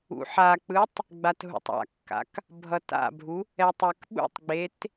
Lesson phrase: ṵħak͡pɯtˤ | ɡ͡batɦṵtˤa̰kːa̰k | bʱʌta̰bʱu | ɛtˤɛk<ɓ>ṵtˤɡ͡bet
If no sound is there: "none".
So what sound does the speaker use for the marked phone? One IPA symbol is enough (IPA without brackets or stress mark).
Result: ɓ